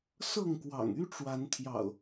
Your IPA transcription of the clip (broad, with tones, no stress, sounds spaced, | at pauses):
s ɤ˥˨ ŋ k w ɑ̰˨˩ ŋ y˦ ʈ͡ʂ w a˨˦ n t̪ʰ j ɑ̰˨˩ ʊ̯